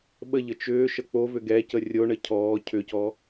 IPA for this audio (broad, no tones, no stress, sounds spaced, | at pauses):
ɓ ə ʎ ə t͡ʃ ʏː ʃ ə k͡p o v ʏ ɡ ɛ c ə rʲ o ɳ ə cʰ ɔː cʰ ʏ c ɔ